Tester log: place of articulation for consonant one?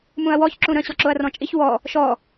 labial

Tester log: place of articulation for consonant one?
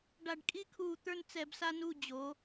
retroflex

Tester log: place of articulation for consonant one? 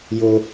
palatal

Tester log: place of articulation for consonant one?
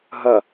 glottal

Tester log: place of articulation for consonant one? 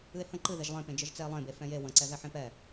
glottal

